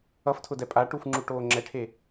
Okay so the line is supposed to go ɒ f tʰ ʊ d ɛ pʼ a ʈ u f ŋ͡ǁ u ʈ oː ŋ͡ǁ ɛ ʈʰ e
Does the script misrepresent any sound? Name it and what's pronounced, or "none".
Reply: ɒ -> ʌ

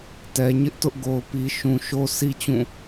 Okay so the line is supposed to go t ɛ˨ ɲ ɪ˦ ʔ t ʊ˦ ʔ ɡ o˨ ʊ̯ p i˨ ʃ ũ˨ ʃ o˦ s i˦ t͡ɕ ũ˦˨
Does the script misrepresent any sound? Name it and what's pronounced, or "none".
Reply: none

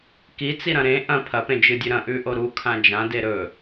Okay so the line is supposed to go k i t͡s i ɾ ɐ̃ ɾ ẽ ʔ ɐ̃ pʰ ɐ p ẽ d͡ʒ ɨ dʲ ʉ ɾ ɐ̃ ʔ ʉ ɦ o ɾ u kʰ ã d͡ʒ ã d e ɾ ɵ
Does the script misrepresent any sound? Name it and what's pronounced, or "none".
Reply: ɦ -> ʔ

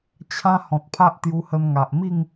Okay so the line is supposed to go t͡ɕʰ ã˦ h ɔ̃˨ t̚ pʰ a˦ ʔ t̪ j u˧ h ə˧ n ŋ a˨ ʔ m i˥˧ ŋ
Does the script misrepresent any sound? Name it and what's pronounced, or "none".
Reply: none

